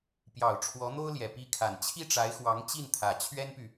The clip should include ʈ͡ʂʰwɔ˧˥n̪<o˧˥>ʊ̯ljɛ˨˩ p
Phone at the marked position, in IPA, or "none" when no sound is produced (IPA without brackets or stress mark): o˥